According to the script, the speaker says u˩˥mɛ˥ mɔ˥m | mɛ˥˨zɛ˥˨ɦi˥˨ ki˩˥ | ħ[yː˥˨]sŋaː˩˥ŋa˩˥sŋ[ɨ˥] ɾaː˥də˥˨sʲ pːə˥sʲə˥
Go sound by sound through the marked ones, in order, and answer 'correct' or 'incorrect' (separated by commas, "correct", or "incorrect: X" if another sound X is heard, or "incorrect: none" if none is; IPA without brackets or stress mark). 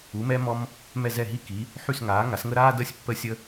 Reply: incorrect: y˥˨, incorrect: ə˥